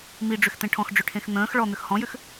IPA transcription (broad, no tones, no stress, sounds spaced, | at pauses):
m i ɖ͡ʐ ʏ x t̪ ẽ ʈʰ ɔ̃ x ɖ͡ʐ ʏ ʈʰ ẽ x n̪ ə̃ː x ɭ ɔ n̪ ʏ x h ɔ̃ j ʏ x